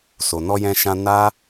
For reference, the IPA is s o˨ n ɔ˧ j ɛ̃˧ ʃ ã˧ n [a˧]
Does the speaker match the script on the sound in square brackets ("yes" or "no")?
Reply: no